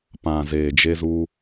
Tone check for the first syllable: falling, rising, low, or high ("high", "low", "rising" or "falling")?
low